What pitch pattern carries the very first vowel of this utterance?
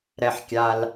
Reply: low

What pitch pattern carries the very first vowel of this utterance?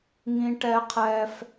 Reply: high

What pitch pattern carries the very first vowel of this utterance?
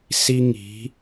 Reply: high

